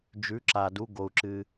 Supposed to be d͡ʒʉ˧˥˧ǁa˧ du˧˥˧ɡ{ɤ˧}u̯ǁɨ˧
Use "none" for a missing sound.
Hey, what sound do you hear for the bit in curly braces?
o˧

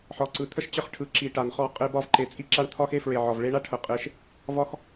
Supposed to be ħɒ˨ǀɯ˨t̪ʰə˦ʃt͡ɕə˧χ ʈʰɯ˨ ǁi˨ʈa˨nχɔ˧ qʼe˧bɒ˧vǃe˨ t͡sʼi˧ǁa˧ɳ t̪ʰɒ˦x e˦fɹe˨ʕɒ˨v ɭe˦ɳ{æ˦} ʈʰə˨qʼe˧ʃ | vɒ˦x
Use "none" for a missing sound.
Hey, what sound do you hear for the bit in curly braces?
a˦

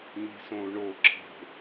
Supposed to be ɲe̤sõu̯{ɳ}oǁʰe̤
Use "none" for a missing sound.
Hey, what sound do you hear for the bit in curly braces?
ɳ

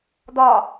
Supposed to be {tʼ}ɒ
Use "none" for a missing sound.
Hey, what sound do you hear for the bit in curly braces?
d̪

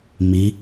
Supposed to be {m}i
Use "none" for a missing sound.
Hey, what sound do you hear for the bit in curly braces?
m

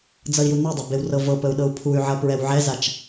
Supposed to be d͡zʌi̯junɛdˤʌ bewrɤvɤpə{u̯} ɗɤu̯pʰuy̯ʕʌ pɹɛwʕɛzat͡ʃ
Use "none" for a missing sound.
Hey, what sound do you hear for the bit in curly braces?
u̯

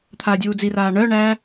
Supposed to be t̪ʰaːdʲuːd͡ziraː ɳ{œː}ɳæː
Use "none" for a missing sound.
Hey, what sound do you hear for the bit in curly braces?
œː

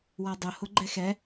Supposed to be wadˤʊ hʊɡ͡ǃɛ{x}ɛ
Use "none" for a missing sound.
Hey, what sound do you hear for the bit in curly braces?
x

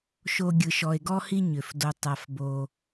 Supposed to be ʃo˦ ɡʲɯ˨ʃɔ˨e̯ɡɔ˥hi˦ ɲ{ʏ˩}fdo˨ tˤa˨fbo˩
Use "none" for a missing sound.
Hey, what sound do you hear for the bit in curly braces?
ʏ˩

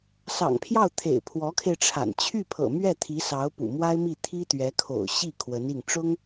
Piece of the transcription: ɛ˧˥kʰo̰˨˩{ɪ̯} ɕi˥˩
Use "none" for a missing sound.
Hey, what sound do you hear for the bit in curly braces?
ʊ̯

